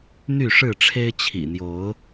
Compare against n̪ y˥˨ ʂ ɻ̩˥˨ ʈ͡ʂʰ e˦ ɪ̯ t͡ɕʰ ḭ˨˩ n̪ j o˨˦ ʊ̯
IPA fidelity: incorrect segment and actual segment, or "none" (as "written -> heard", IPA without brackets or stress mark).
none